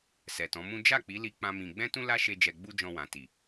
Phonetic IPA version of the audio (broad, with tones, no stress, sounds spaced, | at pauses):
s ɛ˨ t ɔ̃˨˦ m ũ˦ d͡ʒ a˦˨ k͡p i˨˦ l i˦ k͡p ã˦ m ĩ˧ ɡ͡b ɛ̃˦ t ũ˦ l a˦ ʃ e˧ d͡ʒ ɛ˧ ɡ͡b u˦ d͡ʒ ɔ̃˧ w ã˨ t i˨